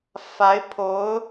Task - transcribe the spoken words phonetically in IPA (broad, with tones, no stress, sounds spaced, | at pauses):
f a˧˥ ɪ̯ pʰ o˧˥ ʊ̯